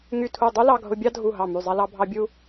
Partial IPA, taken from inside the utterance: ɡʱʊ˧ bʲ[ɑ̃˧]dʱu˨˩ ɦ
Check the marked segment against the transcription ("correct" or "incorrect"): incorrect